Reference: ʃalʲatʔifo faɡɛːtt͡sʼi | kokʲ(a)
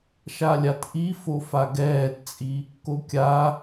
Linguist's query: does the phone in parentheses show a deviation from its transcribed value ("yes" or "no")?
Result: no